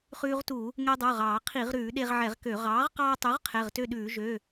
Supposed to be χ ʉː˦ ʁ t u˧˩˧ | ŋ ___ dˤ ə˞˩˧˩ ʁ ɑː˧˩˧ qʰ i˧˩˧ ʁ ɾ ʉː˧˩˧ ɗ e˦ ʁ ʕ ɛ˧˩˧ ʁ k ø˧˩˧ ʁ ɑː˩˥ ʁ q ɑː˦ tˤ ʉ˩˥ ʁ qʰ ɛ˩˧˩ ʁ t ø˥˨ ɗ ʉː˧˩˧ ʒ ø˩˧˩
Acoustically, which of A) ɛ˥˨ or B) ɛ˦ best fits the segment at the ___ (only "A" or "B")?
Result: B